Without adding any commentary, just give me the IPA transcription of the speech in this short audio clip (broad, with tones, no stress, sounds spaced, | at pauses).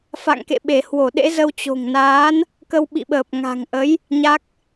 f a̰˧˨ ŋ k ḛ˧˨ ɓ e˧˩ h w o˧˩ ɗ ḛ˧˥ z ə˧ w t͡ɕ o̤˨˩ ŋ n aː˨˦ n | k ə˧ w ɓ ḭ˧˨ ɓ əː˨˩ p̚ ŋ a̤˨˩ ŋ ʔ ə˨˦ j | ɲ a˦˥ k̚